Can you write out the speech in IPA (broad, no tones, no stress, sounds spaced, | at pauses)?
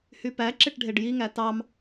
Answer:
h y p æ ǁ e ʈ ɖʱ e ɖ j i ŋ æ t ɑ m